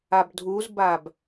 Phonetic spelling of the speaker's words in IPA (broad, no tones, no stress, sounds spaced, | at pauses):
a b dʱ u z b a b